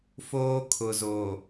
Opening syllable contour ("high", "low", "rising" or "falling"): high